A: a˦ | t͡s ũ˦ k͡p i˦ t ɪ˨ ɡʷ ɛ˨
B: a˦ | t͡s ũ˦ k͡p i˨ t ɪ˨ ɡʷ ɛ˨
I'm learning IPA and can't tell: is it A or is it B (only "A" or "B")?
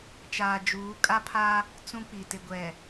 B